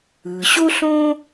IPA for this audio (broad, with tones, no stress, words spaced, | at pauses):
ɯ˩ ɕo˥ɬõ˥